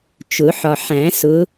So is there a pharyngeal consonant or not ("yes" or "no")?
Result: yes